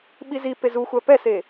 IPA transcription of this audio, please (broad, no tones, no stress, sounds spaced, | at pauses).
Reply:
ɓ i z i p e z u xʷ æ p ɛ s e